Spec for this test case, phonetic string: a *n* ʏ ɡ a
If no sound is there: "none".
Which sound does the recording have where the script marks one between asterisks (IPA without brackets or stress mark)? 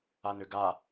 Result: n